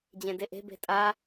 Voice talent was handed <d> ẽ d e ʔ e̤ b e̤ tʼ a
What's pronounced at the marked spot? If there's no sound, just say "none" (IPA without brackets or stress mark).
d͡ʑ